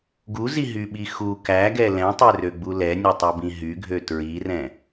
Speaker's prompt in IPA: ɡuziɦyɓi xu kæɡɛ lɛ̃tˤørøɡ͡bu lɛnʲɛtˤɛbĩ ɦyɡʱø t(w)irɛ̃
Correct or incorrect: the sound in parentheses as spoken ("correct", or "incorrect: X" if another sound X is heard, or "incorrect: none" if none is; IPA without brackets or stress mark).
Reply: incorrect: ɹ